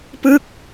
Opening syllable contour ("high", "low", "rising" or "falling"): falling